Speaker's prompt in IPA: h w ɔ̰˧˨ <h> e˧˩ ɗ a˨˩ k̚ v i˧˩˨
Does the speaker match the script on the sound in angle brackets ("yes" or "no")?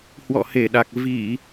yes